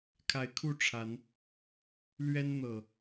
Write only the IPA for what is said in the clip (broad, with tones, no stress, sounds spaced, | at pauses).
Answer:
kʰ a˨˦ ɪ̯ kʰ u˥˨ ʈ͡ʂʰ a˨˦ n | l ɥ ɛ˦ n n̪ ɤ˨˩